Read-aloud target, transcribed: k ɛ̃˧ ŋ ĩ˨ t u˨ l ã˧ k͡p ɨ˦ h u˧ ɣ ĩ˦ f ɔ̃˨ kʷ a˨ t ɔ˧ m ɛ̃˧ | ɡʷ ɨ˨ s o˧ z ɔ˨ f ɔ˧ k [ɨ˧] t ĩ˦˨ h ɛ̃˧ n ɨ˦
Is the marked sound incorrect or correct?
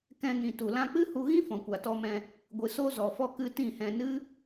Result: correct